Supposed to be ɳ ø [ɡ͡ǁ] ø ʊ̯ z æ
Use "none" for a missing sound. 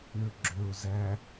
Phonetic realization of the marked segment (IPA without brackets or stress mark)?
ɡ͡ǁ